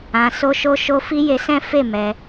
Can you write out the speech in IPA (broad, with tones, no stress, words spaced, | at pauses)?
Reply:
ã˧so˦ʃo˦ʃo˦ fi˦je˧sɛ̃˦fe˦˨ mɛ˧